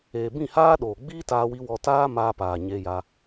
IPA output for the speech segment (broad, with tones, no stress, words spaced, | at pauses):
eː˨bĩ˦˨haː˦ɗoː˨ ɡ͡biː˦taː˧wi˧ wɔ˧taː˦maː˧ paː˨ɲe˧ja˧